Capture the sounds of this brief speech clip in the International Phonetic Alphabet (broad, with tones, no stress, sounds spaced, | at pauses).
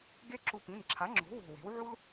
ɡ e˥ ǁ u˧ p ĩ˩˧˩ n ǁʰ a˩˥ ŋ͡ǁ o̤˩˥ w o̤˧˩ w e̤˩˥ w ʕ u˥ l